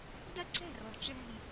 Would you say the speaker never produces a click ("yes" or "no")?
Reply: no